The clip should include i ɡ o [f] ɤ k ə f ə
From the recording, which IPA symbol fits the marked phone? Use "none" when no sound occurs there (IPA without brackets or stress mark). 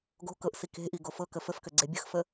f